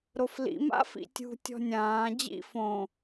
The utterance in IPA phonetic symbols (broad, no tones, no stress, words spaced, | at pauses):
ɾoflḭ ma̰fḭtʲṳ tʲɔ̤nʲãː d͡ʑḭ fõ